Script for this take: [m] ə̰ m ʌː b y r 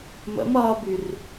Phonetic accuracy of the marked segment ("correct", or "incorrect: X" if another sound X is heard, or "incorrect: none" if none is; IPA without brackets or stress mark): correct